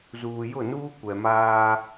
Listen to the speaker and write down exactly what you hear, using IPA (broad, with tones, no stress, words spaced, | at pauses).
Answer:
zuː˨jʊ˦˨nuː˦ kʷɛ˨maː˦